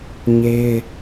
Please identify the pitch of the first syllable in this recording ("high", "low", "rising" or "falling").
high